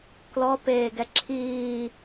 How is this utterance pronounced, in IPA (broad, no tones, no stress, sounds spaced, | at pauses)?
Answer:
k l ɔ p eː ɡ ɛ ǁʰ iː